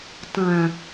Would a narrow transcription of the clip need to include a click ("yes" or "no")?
no